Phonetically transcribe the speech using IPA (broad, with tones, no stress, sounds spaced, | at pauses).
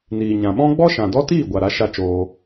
n iː˨ ɲ ã˨ ɓ ɔ̃˦ ɡ͡b ɔ˦ ʃ ã˨ d ɔ˦ t iː˦˨ ɡʷ a˨ ɾ a˨˦ ʃ a˧ t͡ʃ oː˧